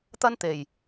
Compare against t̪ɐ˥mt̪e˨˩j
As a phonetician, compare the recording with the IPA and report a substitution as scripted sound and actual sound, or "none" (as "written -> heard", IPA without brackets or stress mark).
m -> n